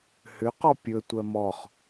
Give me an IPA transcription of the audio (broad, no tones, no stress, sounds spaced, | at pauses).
h ʏ q ɔ pʲ ɵ tʷ ɜ m ɔ χ